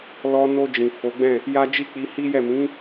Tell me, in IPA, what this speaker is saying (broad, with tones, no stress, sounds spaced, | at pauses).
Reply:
l ɔ˧ n o˧ d͡ʒ ĩ˨ f o˨˦ ɡ͡b ɛ̃˦˨ | j a˦ d͡ʒ i˦˨ k͡p i˧ h i˦ j ɛ˦˨ m ĩ˨˦